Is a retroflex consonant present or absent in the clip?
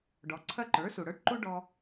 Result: present